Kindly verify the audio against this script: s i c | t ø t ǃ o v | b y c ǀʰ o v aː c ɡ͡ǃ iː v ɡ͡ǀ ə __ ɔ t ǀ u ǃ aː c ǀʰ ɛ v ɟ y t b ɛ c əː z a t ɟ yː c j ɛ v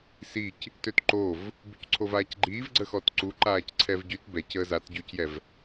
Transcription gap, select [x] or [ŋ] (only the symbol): x